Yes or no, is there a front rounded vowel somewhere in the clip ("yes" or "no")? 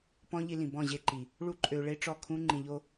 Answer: yes